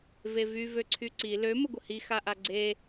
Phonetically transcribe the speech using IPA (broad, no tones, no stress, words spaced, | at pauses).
vevy vøǀʰyǀi lø məɡʷəhi xaʔaɡ͡ǀe